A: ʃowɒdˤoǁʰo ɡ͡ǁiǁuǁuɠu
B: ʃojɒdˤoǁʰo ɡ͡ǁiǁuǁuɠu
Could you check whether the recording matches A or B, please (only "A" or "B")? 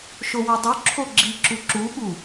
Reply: A